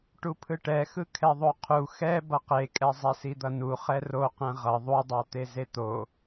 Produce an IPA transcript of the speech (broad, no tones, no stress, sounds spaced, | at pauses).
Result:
ʈ u pʰ ɯ ʈ ɛ x ɯ kʰ ɛ ðˤ o qʰ u x ɛ b ʌ q e kʼ ɛ zˤ ɛ s i d̪ ʌ n u χ ɛ r o q ɛ̃ ʁ ʌ ðˤ u dˤ a t̪ e z e t̪ o